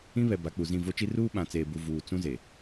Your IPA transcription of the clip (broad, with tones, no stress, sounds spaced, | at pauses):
ĩ˦ β ɛ˨ b a˨˦ k͡p u˨ z ĩ˦˨ v o˦ t͡ʃ i˦ r uː˦ ɓ ã˨ t͡s eː˨ b u˨ v uː˨ t͡s ũ˦ z e˨